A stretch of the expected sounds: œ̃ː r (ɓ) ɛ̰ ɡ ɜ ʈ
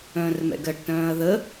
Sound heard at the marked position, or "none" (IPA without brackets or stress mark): m